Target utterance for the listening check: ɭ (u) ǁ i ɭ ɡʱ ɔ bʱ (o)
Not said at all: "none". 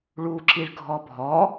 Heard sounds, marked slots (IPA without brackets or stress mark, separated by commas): u, ɔ